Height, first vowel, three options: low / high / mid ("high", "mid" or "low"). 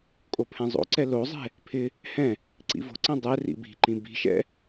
mid